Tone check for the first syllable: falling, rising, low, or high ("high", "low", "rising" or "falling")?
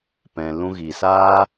low